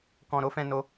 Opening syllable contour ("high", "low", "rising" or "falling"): low